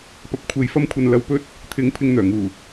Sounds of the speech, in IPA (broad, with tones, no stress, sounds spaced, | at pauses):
p ɐ˨ p̚ kʷʰ e˨ j f ɐ˧ m kʷʰ ɐ˨ n l ɐ˨ w p ɵ˧ t̚ | t̪ʰ ɪ˨˥ ŋ pʰ ɪ˧ ŋ n̪ œː˨˩ ŋ uː˨˩